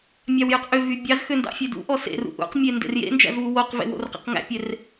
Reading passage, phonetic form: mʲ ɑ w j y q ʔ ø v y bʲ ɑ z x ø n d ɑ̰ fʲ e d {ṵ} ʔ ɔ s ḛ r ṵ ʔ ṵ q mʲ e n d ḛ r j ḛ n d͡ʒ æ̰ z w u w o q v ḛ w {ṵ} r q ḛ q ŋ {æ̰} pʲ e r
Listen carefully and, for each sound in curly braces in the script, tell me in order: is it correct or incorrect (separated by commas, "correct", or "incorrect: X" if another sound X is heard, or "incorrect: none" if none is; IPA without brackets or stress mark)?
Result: correct, incorrect: o̰, correct